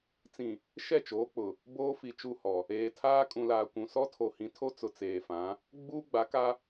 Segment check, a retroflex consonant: absent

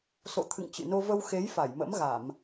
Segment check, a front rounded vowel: absent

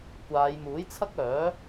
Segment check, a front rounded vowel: present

